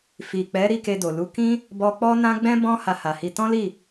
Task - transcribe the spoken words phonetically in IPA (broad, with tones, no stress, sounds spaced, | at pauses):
f i˨ k͡p ɛ˨˦ ɾ i˦˨ k e˧ d o˨ l u˨˦ k ĩ˦ | b ɔ˧ k͡p ɔ˦ n ã˦ ɡ͡b ɛ̃˦ b ɔ̃˦ h a˧ h a˨ h i˧ t ɔ̃˦ l i˦˨